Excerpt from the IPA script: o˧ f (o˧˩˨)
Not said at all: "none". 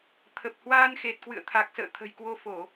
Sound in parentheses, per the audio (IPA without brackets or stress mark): o˧˩˨